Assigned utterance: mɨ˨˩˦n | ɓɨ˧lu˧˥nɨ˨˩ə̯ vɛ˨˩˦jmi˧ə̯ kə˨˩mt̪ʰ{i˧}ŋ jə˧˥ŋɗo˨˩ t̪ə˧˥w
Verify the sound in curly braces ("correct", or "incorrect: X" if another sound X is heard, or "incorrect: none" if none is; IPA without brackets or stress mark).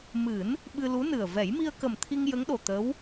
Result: correct